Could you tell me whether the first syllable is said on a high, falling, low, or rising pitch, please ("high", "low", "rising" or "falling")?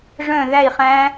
falling